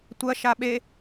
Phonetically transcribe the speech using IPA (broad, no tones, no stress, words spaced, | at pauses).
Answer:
tʷɐ ʃaɓe